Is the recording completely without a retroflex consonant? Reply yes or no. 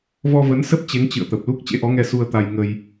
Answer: yes